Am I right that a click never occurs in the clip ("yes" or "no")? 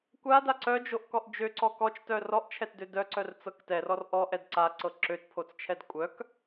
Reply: no